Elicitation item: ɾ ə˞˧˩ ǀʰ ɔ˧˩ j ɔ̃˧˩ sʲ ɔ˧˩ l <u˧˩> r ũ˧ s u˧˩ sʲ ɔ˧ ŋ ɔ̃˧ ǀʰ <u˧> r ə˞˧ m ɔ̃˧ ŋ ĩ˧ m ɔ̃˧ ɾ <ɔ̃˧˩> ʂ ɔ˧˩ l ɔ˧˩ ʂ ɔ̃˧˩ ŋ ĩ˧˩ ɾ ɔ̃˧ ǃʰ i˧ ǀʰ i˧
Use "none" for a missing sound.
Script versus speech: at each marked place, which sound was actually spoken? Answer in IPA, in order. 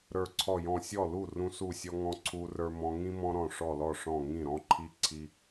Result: u˧˩, u˧, ɔ̃˧˩

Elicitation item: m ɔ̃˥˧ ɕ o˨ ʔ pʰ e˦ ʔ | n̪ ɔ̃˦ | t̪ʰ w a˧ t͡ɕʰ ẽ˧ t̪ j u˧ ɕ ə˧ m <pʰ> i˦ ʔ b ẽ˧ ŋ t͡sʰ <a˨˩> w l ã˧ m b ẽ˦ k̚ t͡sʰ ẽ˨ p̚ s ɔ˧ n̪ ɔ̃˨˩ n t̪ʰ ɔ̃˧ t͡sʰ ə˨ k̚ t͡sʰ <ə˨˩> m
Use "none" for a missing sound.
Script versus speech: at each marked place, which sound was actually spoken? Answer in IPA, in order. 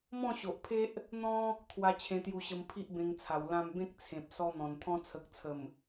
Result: pʰ, a˨˩, ə˨˩

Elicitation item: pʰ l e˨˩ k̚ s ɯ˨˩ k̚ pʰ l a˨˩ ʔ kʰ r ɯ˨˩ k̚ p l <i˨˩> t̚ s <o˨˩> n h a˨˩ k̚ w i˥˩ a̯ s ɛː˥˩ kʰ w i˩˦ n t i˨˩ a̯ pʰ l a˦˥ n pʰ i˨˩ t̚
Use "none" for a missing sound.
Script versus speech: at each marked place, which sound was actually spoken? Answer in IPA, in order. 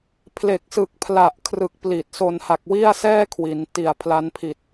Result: i˨˩, o˨˩

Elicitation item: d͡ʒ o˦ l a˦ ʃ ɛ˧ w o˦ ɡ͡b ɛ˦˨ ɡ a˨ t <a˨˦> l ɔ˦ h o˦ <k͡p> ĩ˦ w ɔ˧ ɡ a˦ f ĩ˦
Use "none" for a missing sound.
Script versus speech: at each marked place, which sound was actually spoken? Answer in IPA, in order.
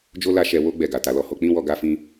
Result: a˨˦, k͡p

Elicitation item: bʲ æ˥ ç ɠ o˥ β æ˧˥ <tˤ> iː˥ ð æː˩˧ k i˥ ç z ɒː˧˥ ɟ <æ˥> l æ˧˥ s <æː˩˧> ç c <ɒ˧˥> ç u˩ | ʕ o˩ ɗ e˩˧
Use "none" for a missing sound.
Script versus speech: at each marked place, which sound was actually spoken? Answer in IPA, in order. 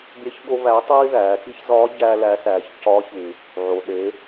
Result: tˤ, æː˥, æː˩˧, ɒ˧˥

